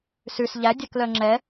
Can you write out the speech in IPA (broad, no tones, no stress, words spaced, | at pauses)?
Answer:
sʉs ʎæ dʲœklœŋ͡ǁɛ